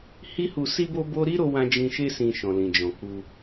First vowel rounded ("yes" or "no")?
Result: no